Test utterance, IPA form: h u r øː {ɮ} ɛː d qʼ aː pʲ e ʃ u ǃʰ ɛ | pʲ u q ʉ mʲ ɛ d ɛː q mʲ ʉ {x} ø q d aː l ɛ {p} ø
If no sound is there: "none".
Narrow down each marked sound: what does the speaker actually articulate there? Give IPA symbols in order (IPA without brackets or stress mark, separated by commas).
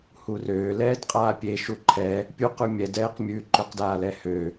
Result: l, ǃ, h